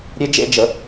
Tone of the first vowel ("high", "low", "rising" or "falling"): high